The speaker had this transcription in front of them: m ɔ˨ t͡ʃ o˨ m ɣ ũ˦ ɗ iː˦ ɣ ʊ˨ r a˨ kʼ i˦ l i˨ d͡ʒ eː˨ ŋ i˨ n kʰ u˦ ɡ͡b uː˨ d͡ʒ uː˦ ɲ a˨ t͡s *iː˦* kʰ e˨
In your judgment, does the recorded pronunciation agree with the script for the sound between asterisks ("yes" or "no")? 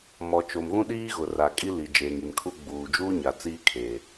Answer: yes